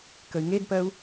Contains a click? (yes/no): no